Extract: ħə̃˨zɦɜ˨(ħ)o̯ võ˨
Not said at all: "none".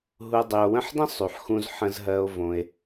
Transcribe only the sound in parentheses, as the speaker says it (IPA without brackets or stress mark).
none